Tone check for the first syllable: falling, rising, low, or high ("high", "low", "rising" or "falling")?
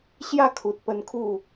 falling